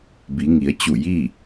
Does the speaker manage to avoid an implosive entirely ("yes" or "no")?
yes